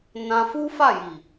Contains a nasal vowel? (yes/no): yes